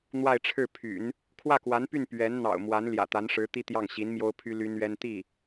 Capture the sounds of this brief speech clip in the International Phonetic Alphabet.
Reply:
n̪ w a˥˧ ɪ̯ ʈ͡ʂʰ ɻ̩˥˩ pʰ y̰˨˩˦ n | kʰ w ä˥˩ k w a˧˥ n p y˥˩ n p ɥ ɛ˧˥ n n̪ ɑ̰˨˩ ʊ̯ m w a˧˥ n l j ä̰˨˩ t̪ a˧˥ n ʂ ɻ̩˧˥ t̪ i˥ t̪ j ɑ˥˩ ŋ ɕ i˧˥ n m j o˥ ʊ̯ pʰ y˥ l y˥ n ɥ ɛ˥ n t̪ i˥˩

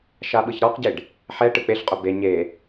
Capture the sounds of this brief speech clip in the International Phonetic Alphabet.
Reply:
ʃ a ɓ ɯ ç ɾ ɔ q ɟ e ɖ | ħ ɛ ʈ ɯ k͡p e ɬ qʼ o b e ɲ e

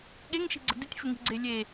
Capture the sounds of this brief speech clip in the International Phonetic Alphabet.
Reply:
ɠ e ŋ ʃ i̤ ɡ͡ǀ ə̤ d ɪ tʲ f ɪ ŋ i̤ ɡ͡ǀ e lʲ e

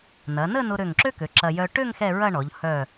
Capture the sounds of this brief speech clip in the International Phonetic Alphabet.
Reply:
n ɐ˩˧ n ə˥˧ n ʊ˧ ɾ ø˧˩ ŋ ǁ ø˥ k ø˩˧ ǁ ɐ˧ j œ˧ ʈ ø˥˧ ŋ x ɛ˥˧ ɹ ɐ˥˧ ɳ ɔ˩˧ ʎ h œ˧˩

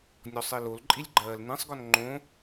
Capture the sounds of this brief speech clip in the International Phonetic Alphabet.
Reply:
nʲ ɔ sˤ i l o l ǃʼ i lʲ ɡ͡ǃ ɜː l n ĩ sˤ ɡ ɔ n ŋ͡ǃ õ

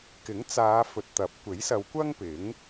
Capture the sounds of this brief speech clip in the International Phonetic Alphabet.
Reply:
k ɪ˨˥ ŋ t͡s aː˨˧ f ɵ˨ t̚ t̪ ɐ˨˥ p̚ kʷ e˨˥ j s ɐ˨˧ w kʷ ɐ˥ ŋ p ɪ˨˥ ŋ

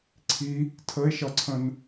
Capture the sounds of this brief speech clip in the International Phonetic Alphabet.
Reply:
ǀʰ i | tʰ ə e̯ ʃ ʌ ǀʰ ə̃ n

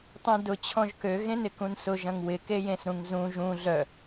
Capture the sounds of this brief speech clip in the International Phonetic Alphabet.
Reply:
tˤ ũ d ʊ t͡ɕʰ ɔ̃ ʒ k ø ɣ ẽ n ɪ k ũ n s ʊ ʒ ɐ̃ ŋ w ɪ k e j ẽ s ɾ ũ ŋ z ũ ʒ ũ ɮ œ

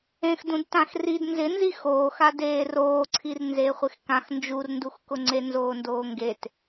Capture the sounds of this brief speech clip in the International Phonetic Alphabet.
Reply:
ẽ x d ũ d t ã x r i d n z ɪ n z i x oː x a d eː r oː ǀʰ i r n z eː χʷ e x k ã x n d͡ʒ u r n d u x k ʊ ŋ͡ǀ e n z oː n d oː ŋ ɡ e t

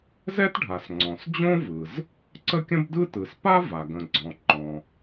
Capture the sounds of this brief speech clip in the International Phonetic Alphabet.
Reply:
z ɛ˥ t ɖʱ a˩ s ŋ͡ǀ ɔ̃˩ s d͡ʑ õ˥ v ɯ˩ z | ǀ ə˥ kʲ ə̃˥ b d ɯ˥ t ɯ˩ s p a˥ v a˩ ɡ ə̃˩ ɡ͡ǀ ɔ̃˩ ŋ͡ǃ ɔ̃˩

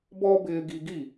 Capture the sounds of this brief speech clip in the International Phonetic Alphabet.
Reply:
b ɔ˦ b ɪː˧ ɡ i˧ ɡ i˦˨

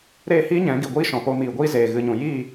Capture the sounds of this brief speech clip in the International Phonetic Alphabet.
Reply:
ɾ eː˦˨ h iː˦ ɲ ɛ̃˨˦ ɡ i˨ ɡʷ iː˦ ʃ ɔ̃˨ p oː˧ m iː˨ ɡʷ iː˦ z eː˨ ɣ ɨ˨ ɲ ũ˨ j iː˦˨

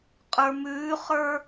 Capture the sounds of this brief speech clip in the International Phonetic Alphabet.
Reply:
qʼ ə˞ m ʉː χ ə˞

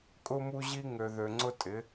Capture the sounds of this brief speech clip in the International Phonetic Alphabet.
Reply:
kʼ ʊ˦ m u˦ ʑ i˦ ŋ ø˨ ð ø˨ ŋ͡ǀ ʊ˦ tʼ ɪ˨˦

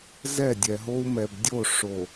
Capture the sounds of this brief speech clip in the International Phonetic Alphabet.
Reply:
z ɛ˦˨ dʲ ɛ˨ ɦ o˦ u̯ m ɛ˨ b dʲ o˦˨ ʂ o˨

